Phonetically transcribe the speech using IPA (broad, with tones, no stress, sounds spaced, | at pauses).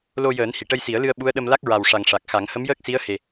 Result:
l o˧ j əː˨˩˦ n h i˨˩˨ ʈ ə˧ j s i˨˩˦ ə̯ l ɨ˧ ə̯ ɓ u˧˥ ə̯ ɗ ə˧ m l a˦˥ k̚ ɹ a˨˩ w ʂ a˨˩ ŋ ʂ a˨˩ k̚ x a˨˩˦ ŋ h ə˧˥ m j əː˦˥ k̚ s i˧˥ ə̯ h e˨˩